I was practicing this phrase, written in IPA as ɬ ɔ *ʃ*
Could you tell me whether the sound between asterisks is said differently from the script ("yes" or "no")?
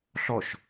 no